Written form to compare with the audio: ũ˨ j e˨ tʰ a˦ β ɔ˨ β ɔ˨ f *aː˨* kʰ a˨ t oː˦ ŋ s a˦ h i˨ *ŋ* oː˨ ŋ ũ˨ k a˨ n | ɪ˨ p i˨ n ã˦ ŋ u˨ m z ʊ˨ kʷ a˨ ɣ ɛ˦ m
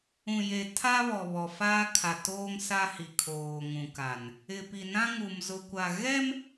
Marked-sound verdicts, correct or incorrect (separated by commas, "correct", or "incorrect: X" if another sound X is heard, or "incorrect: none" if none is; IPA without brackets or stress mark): incorrect: aː˦, incorrect: kʰ